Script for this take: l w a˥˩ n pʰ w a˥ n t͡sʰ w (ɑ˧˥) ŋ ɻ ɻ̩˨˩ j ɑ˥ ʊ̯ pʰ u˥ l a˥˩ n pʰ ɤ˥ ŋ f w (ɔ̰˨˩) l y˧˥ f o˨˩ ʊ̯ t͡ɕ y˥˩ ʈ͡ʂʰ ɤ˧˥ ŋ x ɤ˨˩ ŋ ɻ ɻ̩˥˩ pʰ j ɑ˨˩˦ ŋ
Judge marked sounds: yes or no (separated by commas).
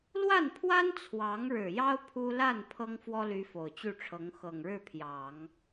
yes, no